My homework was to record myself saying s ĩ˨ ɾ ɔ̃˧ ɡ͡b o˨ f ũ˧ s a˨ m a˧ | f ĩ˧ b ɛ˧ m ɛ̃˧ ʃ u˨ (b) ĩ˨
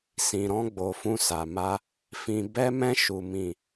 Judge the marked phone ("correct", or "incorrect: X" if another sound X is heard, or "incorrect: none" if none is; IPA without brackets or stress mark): incorrect: m